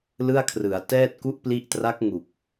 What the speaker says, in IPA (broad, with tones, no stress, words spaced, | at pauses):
lɯ˥˩a̯kʰrɯ˩˦a̯ tɛː˥˩t̚ku˥˩ʔpli˦˥ʔ tra˦˥k̚ŋu˨˩k̚